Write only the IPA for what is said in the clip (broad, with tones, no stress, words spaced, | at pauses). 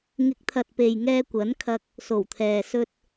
ŋɪ˨˥k̚t̪ʰɐ˨t̚pe˨j ŋɛː˧kʷɐ˨˥nkʰɐ˧k̚ | so˨˩wt̪ʰɛː˨sɵ˧t̚